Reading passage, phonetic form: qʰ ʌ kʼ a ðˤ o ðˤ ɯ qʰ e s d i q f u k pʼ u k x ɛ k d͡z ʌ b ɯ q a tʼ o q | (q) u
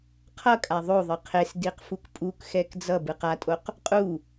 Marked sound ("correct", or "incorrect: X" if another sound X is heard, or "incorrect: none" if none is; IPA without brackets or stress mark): incorrect: qʼ